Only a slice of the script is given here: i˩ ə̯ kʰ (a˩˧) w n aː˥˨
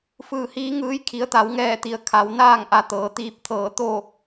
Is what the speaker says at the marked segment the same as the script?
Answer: yes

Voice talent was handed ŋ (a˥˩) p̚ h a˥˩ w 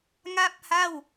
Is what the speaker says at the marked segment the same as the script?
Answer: yes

